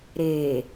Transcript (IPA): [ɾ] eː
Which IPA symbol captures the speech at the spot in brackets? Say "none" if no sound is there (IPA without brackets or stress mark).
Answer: ɾ